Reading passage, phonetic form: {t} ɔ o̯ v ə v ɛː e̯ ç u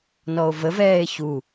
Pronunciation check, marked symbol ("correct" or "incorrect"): incorrect